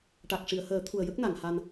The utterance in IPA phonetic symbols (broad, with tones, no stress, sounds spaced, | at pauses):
ʈ a˨˩ k̚ ʂ i˨˩˨ ə̯ h əː˨˩˦ t̪ʰ u˨˩ ə̯ j ə˦˥ k̚ n a˨˩˨ ŋ h a˧ n